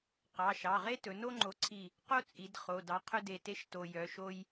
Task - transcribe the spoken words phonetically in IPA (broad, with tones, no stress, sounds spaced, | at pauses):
q ɑ˩˧˩ ʃ ɑ˩˧˩ ʁ e˥ t ɵ˩˧ n o˥ ŋ͡ǃ o˨˥ ǀʰ i˧˩ | q o˥ t͡sʼ i˩˧ d χ o˩˧˩ d ɑ˨˥ qʰ ɵ˥ d e˧˩ t e˥ ʃ t o˧ j œ˩˧ ʃ o˧ j